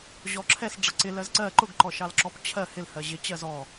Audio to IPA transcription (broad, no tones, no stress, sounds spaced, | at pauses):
ʑ ɔ ǁʰ ɛ s ɖ͡ʐ ʌ ǀ ɪ l ɜ z ǀ ɜ ǃ ʊ ɡ ǃ ɔ ʃ ɑ l ǁ ɔ p t͡ɕʰ ɜ h ɪ l h ɜ ʑ ɪ t͡ɕ ɜ z ɔ